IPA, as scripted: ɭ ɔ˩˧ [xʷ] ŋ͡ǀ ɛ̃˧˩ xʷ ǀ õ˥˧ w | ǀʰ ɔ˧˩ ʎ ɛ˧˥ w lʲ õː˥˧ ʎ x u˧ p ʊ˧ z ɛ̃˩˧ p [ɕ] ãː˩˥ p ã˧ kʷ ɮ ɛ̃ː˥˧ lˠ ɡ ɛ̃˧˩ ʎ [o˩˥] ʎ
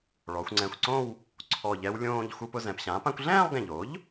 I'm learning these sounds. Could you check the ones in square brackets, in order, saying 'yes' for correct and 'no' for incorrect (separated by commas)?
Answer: yes, yes, yes